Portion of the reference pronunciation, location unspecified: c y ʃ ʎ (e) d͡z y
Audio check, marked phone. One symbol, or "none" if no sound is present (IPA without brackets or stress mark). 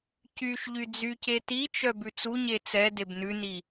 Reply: y